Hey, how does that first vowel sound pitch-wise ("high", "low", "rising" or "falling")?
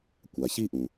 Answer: low